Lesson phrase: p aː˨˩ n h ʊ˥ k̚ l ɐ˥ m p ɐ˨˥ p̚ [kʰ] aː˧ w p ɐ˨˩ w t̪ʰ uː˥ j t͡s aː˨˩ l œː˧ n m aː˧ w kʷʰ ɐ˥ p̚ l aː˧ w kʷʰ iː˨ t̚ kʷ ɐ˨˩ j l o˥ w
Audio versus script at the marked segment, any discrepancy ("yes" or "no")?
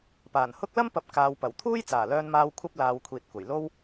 yes